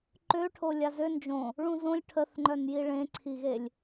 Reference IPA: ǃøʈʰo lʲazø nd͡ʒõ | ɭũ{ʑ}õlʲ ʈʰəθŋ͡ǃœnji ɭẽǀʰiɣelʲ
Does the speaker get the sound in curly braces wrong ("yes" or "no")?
yes